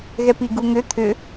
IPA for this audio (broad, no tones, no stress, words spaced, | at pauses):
ɣɛpiɡuŋʏ t̪ʰʏ